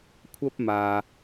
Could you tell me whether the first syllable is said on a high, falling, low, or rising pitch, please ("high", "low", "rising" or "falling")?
high